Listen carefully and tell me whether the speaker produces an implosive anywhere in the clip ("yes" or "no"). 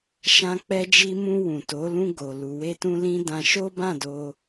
no